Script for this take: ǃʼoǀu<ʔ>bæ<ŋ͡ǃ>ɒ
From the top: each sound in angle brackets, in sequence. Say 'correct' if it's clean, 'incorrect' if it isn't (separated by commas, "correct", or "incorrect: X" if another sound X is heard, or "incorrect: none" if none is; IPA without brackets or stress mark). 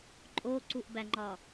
correct, correct